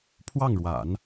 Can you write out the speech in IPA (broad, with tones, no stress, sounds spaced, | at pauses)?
pʰ w ɑ˥˩ ŋ ɻ w a̰˨˩˦ n